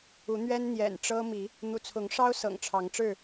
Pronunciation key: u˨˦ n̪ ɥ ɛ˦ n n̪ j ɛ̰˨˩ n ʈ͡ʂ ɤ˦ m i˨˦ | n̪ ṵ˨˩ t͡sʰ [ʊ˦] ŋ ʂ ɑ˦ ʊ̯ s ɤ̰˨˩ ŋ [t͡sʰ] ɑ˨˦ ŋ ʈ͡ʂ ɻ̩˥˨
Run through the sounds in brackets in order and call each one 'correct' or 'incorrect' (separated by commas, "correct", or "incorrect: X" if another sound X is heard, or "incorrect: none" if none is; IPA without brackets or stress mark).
incorrect: ʊ˨˦, incorrect: ʈ͡ʂʰ